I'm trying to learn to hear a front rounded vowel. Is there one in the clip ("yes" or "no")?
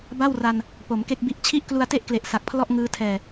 no